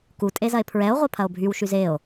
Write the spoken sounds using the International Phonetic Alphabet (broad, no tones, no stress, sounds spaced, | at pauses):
k u tʼ e z ɐ e̯ pʰ ɹ ɛ o̯ ʁʷ œ pʰ ɐ o̯ bʱ y w ʃ y z e o̯